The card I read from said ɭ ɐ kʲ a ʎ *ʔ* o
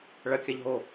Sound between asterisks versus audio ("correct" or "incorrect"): incorrect